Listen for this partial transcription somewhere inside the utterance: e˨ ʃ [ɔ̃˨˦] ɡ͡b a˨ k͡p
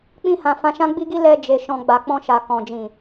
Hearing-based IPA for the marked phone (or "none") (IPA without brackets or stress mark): ɔ̃˨